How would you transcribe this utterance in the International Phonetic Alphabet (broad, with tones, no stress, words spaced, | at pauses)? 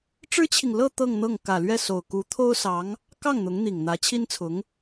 ʈ͡ʂɻ̩˥t͡ɕʰi˨ŋ lɤ˥˧ t̪ɤ˥˧ŋn̪ɤ˥˩ŋ kä˨˩lɥɛ˥˩so˨˩ʊ̯ ku˧˥t̪ʰo˥ʊ̯sɑ˧˥ŋ | kɑ˥˩ŋn̪ʊ˧˥ŋn̪i˨˩ŋ n̪ä˧˥t͡ɕʰi˥nt͡sʰʊ˧˥ŋ